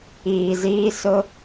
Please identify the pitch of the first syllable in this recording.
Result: low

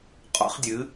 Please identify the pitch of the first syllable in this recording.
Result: high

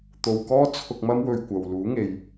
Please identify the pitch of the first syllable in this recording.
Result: low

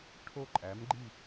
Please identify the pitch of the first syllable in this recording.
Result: falling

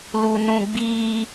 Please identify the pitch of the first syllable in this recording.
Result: low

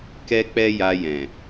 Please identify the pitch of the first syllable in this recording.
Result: high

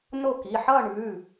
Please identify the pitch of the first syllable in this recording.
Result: falling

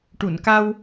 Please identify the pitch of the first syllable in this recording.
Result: low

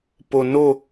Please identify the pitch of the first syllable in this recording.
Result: low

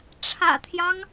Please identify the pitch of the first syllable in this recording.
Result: low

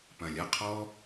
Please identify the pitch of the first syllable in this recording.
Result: low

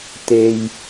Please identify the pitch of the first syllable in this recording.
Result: low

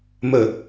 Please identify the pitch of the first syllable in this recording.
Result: low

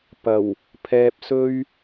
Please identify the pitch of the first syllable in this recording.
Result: low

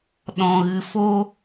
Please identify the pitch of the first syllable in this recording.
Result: low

